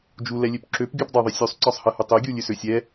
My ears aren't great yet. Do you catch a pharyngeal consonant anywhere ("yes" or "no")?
no